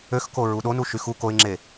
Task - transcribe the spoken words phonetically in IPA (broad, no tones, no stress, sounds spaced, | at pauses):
ø x k o ɹ u ɗ o n u ʃ y x u k o ɪ̯ ŋ͡ǁ e